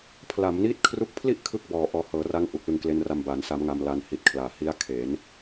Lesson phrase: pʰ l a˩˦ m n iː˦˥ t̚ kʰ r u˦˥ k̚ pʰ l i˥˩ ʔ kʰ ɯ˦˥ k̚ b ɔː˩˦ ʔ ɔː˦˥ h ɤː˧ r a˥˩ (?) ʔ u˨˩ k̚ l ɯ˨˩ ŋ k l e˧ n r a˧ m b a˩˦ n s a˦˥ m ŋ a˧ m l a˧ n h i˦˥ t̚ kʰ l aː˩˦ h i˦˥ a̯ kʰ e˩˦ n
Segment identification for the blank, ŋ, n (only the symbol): ŋ